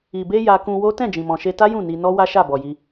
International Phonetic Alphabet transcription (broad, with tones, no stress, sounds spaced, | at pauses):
i˨ b e˧ j a˧ k ũ˧ w o˦ t ɛ̃˦˨ d͡ʒ ĩ˨ m ɔ̃˨ ʃ e˧ t a˦ j ũ˦˨ n i˧ n ɔ˦ w a˦ ʃ a˦˨ b ɔ˨ j i˧